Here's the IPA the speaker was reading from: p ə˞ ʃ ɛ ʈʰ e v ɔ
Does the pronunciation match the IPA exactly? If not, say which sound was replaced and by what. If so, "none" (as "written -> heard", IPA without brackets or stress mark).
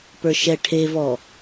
none